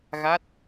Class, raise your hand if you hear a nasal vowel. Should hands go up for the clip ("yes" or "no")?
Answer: no